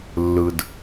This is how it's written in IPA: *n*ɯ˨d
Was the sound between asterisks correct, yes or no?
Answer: no